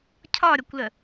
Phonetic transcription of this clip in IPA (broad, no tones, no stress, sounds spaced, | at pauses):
cʰ ɒ ɾʲ ɒ kʷ l ə